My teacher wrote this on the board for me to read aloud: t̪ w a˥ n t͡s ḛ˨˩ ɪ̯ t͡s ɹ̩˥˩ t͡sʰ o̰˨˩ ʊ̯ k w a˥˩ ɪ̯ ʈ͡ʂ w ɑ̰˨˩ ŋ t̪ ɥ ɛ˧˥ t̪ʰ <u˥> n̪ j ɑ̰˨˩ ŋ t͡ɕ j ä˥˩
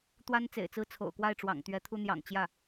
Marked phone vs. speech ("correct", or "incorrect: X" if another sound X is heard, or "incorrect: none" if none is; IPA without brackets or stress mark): correct